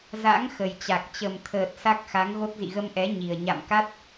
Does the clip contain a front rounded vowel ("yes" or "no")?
no